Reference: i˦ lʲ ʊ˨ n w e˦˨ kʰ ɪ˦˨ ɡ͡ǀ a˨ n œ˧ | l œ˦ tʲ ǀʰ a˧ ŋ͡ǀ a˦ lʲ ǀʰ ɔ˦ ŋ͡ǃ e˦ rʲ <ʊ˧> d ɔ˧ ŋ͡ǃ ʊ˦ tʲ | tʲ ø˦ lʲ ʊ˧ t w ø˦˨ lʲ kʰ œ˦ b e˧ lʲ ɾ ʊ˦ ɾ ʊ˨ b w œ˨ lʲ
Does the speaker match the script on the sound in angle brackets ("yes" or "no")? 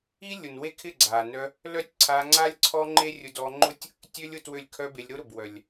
yes